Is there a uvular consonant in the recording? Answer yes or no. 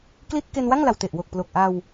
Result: no